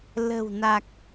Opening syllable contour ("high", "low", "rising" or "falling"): low